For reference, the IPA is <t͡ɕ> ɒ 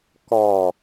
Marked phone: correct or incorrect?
incorrect